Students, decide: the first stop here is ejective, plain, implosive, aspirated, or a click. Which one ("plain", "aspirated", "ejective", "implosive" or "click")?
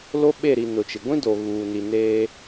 implosive